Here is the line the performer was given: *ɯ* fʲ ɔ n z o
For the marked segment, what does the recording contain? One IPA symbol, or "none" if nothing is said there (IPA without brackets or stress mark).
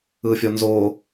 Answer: ɯ